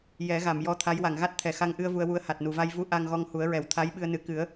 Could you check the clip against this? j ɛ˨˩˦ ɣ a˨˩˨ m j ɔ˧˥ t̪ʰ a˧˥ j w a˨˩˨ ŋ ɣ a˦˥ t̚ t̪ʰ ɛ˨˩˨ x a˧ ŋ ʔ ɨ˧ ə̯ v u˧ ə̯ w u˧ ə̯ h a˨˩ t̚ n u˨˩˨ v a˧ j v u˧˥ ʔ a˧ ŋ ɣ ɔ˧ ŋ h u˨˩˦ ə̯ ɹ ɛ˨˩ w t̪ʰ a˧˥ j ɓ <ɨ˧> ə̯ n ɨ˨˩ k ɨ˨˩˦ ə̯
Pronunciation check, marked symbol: correct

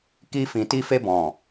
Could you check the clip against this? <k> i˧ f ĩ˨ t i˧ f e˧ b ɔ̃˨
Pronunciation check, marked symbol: correct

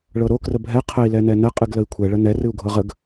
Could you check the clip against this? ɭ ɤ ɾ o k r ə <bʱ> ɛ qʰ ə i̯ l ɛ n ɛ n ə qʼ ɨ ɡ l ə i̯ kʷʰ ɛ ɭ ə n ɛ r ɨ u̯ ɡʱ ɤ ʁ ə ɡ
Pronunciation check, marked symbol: correct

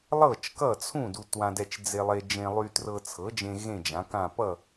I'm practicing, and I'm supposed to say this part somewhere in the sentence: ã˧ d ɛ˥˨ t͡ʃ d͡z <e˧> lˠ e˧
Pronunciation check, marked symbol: correct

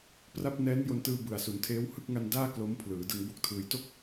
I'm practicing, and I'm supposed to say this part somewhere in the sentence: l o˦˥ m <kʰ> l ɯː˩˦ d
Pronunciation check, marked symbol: incorrect: pʰ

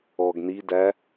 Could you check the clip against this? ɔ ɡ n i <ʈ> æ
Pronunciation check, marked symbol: incorrect: d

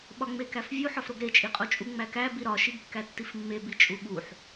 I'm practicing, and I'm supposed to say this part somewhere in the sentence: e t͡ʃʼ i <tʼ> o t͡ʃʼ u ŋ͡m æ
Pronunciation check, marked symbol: incorrect: qʼ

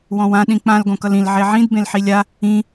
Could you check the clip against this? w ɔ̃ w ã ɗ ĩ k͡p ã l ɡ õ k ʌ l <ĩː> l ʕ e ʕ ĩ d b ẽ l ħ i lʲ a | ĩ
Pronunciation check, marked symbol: incorrect: ĩ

